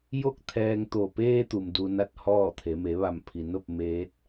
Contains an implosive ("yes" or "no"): no